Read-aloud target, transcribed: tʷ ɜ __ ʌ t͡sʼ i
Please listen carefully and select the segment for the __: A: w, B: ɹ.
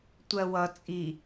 A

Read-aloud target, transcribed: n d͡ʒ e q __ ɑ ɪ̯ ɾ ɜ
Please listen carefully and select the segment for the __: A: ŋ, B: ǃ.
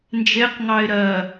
A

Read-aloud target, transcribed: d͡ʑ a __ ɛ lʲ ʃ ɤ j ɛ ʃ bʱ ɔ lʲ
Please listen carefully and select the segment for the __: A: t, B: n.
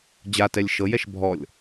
A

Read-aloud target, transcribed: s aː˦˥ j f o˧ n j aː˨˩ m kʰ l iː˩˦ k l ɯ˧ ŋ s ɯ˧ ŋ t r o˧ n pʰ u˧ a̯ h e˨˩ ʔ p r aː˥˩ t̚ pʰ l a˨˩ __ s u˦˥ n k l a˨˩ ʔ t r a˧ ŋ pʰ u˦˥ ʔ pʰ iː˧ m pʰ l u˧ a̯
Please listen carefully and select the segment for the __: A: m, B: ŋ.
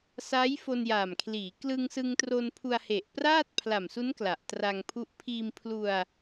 A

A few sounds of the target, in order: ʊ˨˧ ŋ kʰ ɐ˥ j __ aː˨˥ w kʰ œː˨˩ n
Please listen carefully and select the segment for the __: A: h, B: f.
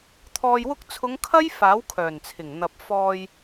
B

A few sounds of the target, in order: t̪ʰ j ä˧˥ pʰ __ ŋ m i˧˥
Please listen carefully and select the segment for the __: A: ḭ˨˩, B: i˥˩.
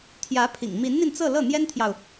A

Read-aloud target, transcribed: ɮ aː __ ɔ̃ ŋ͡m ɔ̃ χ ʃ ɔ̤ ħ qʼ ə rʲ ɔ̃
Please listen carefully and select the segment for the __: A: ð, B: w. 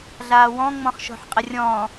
B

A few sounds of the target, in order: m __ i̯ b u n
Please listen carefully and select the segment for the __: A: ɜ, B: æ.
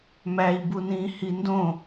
B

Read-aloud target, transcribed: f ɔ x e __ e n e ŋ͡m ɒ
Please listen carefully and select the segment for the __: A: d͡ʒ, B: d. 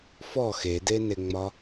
B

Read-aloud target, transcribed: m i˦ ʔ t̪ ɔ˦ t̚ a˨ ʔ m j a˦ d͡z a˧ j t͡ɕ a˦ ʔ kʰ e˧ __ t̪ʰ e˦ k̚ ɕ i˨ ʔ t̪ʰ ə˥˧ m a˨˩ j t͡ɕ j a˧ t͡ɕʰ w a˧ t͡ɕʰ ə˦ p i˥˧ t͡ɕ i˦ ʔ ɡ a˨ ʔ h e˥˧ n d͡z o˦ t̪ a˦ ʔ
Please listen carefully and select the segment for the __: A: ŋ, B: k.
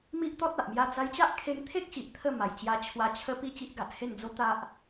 A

